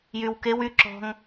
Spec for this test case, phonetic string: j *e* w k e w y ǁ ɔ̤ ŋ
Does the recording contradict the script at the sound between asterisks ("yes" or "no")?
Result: yes